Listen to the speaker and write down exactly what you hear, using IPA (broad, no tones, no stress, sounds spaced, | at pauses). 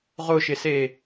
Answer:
ʁ ʊ ʃ ɪ s e